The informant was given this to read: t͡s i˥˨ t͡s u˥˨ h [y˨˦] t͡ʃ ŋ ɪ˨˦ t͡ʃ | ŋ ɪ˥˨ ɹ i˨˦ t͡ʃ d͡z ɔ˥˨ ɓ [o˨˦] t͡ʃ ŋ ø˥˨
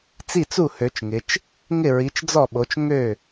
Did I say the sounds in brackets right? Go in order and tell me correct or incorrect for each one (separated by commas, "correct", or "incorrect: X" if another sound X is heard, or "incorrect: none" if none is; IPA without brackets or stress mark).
incorrect: ø˨˦, correct